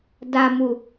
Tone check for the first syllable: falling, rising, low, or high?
low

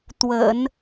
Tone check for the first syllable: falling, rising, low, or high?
low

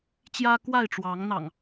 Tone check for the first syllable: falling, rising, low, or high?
high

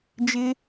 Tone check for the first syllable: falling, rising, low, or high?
low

